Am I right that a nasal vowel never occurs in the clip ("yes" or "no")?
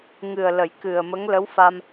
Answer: yes